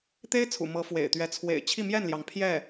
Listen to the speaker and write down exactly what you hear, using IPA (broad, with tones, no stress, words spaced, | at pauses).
t̪e˥ɪ̯t͡sʰṵ˨˩ mɤ˧˥fwḛ˨˩ɪ̯t̪ɥɛ˧˥ t͡sʰwḛ˨˩ɪ̯ t͡ɕʰi˥˧mjɛ˥˩nljɑ˩ŋ pʰjɛ˥˩